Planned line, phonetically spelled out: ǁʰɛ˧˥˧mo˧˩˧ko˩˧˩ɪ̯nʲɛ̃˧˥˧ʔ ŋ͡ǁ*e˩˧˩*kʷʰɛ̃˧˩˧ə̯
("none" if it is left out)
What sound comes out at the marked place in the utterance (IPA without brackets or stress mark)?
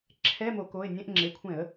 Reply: e˩˧˩